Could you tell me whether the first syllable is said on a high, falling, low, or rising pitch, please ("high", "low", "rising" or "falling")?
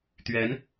rising